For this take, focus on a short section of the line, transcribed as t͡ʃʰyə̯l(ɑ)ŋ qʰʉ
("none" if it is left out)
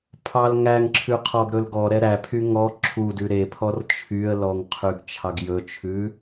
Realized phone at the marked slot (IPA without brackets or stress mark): ɔ